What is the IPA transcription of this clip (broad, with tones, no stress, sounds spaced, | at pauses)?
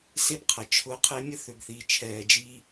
s e˥ b qʰ ɐ˩ t͡ʃʰ ʊː˦ qʰ e˥ mʲ ə˥ θ ø˨ ɡ θ iː˨ t͡ʃʰ ɛː˨ d͡ʒ i˦